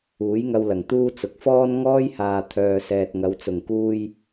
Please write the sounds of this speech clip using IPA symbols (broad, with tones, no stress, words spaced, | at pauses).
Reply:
uː˨˥jŋɐ˧wlɐ˨˩ŋ t̪uː˥t͡sʊ˨k̚ fɔː˥nŋɔː˥jhaː˨ t̪ʰœː˨sɛː˨t̚ŋɐ˨˧w t͡sʊ˨˩ŋkuː˧j